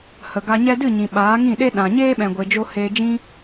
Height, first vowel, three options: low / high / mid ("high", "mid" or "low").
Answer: mid